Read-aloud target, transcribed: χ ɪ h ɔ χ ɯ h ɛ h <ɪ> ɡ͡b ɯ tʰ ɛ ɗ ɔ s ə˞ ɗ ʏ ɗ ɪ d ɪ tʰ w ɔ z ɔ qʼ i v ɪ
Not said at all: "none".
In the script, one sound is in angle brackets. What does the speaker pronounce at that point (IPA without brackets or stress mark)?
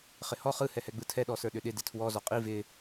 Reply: ɛ